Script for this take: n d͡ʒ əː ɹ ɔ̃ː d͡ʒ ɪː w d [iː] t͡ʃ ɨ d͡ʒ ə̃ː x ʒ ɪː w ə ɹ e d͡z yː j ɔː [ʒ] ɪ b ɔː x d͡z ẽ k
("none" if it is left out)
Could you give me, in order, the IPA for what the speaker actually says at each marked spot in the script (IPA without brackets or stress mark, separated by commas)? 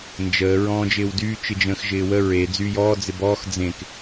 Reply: yː, d͡z